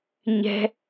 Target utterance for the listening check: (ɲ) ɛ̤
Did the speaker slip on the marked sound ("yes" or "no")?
no